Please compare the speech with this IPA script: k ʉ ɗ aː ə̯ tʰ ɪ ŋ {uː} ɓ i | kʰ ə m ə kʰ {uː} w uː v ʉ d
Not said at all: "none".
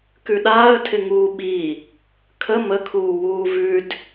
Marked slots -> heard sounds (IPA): uː, uː

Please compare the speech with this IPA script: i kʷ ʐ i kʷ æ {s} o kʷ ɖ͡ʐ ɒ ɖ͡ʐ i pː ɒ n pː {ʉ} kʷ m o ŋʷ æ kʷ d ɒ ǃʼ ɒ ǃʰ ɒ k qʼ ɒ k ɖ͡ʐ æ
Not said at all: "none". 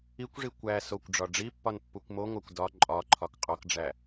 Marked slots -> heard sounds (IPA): s, u

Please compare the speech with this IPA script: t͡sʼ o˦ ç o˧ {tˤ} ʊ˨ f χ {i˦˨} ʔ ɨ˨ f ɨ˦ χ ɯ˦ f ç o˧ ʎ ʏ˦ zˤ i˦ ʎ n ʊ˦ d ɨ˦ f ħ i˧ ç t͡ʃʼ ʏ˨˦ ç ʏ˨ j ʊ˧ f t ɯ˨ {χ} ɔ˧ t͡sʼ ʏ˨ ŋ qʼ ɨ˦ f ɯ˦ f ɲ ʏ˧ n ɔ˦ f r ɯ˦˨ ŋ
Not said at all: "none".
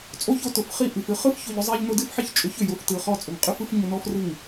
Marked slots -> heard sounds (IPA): t, i˦˨, χ

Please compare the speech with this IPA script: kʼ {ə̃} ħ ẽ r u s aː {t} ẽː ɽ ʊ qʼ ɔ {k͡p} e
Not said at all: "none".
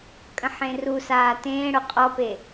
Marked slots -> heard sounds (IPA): ə̃, t, p

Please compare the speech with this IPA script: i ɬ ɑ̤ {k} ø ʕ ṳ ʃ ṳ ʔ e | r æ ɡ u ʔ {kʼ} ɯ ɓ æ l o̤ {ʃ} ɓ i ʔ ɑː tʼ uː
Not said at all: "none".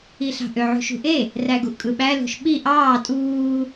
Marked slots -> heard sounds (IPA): ʔ, kʼ, ʃ

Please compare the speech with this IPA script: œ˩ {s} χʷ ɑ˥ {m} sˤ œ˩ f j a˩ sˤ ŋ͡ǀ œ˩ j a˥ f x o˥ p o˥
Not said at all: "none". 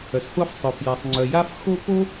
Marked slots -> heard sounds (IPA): s, f

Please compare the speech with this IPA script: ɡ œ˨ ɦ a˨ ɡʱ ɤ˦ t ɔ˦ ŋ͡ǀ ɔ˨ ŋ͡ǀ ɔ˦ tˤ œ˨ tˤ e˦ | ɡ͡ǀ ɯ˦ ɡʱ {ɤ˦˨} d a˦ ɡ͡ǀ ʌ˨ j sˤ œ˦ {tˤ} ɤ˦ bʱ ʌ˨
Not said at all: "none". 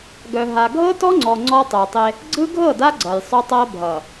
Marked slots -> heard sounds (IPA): ɤ˦˨, tˤ

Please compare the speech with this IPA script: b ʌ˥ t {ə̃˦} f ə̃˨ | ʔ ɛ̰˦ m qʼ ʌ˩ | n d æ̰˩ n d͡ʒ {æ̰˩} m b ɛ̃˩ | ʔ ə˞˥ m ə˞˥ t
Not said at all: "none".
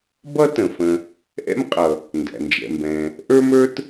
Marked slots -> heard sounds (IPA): ə̃˩, ɛ̰˩

